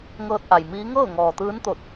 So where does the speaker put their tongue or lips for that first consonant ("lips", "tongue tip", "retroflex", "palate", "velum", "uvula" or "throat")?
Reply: velum